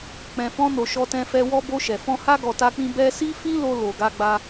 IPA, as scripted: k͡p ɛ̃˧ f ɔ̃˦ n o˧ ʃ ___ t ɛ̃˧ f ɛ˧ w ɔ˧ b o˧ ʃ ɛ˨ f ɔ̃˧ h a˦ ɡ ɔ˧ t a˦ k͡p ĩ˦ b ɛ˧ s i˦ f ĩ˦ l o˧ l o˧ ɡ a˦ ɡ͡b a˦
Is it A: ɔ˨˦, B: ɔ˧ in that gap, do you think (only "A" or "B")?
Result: B